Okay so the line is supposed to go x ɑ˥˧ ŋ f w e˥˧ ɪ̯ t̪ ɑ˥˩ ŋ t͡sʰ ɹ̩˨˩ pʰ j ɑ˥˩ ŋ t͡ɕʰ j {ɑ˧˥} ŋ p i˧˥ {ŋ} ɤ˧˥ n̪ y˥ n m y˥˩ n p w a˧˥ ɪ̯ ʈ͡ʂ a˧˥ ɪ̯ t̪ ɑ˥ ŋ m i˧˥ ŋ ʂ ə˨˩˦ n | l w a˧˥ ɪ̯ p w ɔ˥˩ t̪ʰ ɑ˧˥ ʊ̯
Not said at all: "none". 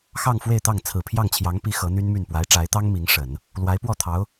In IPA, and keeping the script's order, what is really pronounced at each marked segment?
ɑ˧˥, x

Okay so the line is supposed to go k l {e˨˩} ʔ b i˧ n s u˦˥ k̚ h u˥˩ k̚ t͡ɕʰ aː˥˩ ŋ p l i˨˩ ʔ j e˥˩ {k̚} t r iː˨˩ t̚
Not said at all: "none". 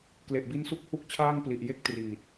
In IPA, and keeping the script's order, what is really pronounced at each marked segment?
e˨˩, k̚

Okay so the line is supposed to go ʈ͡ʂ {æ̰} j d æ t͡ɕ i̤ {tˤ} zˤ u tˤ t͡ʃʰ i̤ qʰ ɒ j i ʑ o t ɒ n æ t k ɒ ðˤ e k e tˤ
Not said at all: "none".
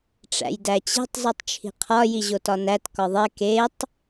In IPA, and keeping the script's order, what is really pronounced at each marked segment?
æ̰, tˤ

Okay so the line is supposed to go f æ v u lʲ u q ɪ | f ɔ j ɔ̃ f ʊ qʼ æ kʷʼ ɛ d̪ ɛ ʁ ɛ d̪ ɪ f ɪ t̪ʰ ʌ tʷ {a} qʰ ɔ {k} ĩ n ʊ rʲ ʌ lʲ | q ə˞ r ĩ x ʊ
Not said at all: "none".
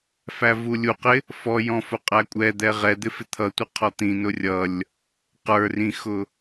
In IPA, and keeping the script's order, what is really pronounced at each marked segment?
ʌ, t̪

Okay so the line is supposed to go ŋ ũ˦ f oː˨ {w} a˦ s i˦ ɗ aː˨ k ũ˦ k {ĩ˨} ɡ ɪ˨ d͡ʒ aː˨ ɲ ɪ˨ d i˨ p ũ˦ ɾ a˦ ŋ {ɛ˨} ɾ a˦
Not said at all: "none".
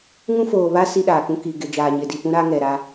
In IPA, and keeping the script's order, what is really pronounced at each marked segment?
β, i˨, ɛ˨

